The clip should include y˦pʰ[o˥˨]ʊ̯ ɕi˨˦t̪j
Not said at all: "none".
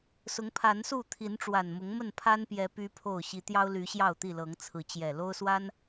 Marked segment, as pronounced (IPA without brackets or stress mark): o˥˨